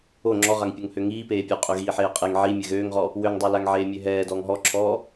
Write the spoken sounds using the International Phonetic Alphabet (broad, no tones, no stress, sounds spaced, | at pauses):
o ŋ͡ǁ ɔ ʁ a ŋ pʲ o ŋ h ø ŋ iː p eː pʲ o qʼ ø ɣ iː ħ eː qʼ e ŋ ʕ i mʲ ɛ ɣ øː ŋ ʁ ɔ | w ø ŋ dˤ ø l a ŋ ʕ eː mʲ ø ɦ ɛː d ɔː ŋ ɦ ɔ ǁʰ ɔː